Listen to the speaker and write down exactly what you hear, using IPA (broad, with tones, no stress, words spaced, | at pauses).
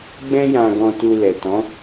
ɡ͡bɛ̃˦jã˧ ɡɔ̃˧tu˧lɛ˨tɔ̃˨˦